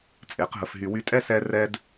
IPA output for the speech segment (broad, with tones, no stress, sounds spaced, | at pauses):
t͡sʼ e˨˦ q ɦ ə˧ f ɦ y˧ w y˧ tʼ ɛ˦ s ɛ˦ r ɛ˦ d